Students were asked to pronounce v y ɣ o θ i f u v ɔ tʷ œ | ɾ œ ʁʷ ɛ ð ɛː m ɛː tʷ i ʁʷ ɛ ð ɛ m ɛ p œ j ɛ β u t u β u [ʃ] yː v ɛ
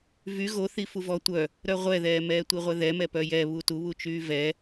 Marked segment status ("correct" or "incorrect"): incorrect